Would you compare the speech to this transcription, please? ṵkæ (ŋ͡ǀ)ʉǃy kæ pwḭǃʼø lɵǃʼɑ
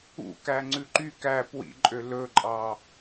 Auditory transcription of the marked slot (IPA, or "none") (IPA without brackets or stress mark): ŋ͡ǀ